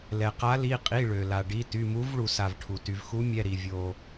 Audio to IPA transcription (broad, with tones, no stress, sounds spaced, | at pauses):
l ɛ˩ q a˨˥ l i˩˧˩ qʼ i˩˧˩ ɭ ø˩ l a˩ ɖ i˩˧˩ t y˩˧˩ m u˨˥ v ɭ u˩ s a˩ v ʈʰ u˩ t y˩ v x u˨˥ mʲ ɛ˩˧˩ ɾ i˩ vʲ o˩